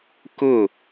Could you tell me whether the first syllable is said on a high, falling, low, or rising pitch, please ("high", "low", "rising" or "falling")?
falling